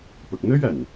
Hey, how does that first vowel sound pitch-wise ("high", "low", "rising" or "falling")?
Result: low